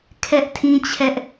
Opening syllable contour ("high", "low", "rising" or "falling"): high